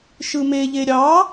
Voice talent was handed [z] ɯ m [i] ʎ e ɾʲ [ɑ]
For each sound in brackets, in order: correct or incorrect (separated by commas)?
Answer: incorrect, incorrect, correct